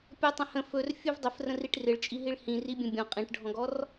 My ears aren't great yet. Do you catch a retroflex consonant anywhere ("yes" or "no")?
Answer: yes